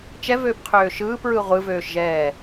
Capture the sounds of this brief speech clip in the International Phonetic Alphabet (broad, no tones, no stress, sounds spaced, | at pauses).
t͡ʃ ɛ v øː p qʰ øː ʃ ɯː p ɹ ɯ ʁʷ ɯ v øː ʃ ʒ ɛː